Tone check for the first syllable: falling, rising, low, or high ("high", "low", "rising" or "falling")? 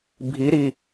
rising